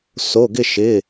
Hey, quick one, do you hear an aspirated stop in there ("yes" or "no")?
no